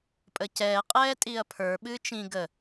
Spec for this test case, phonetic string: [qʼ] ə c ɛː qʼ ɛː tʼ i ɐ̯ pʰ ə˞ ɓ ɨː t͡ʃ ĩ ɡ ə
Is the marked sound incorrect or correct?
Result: incorrect